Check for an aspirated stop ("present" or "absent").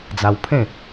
present